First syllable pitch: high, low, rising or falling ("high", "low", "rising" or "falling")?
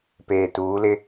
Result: low